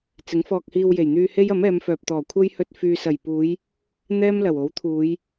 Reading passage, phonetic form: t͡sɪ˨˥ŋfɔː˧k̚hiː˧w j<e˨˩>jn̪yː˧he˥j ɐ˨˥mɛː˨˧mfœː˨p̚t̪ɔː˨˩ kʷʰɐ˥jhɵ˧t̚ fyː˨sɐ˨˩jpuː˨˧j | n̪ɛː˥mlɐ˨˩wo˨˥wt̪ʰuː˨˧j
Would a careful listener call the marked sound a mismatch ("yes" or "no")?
no